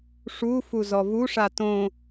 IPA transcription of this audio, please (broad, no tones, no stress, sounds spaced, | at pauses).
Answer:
ʂ u f u z ɔ v u ʂ a t õ